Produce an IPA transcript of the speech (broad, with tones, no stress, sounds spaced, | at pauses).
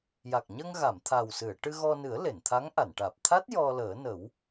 j a˨˩ k̚ ɲ ə˧ ŋ ɣ a˨˩˨ m t̪ʰ a˨˩ w s ɨ˨˩˨ ə̯ ʈ ɨ˧ ɣ ɔ˧ n ɨ˨˩˦ ə̯ l e˨˩˨ n t̪ʰ a˧˥ ŋ ʔ a˨˩˨ n ʈ aː˨˩ p̚ t̪ʰ a˦˥ t̚ j ɔ˧ l əː˨˩˦ n ə˨˩˦ w